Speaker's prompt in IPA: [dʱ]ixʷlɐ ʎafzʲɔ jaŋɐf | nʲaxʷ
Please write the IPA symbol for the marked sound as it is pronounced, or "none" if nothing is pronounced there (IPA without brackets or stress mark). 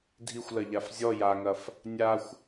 dʱ